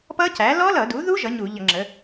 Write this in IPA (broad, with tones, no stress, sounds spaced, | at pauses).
p ʌ˦˥ c æ˩˥ l ɔ˦˥ l ʌ˧˩˧ d u˩˥ ð u˦˥ ʒ ʌ˩˥ ɲ u˧˩˧ ʎ ʌ˧˩˧ ŋ͡ǁ ə˩˥